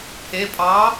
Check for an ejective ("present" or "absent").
present